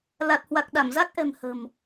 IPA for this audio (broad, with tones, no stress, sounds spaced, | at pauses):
l a˨˩ t̚ h w a˨˩ k̚ ɗ a˧˩ m z a˦˥ k̚ ʔ ɛ̤˨˩ m h ə̤˨˩ m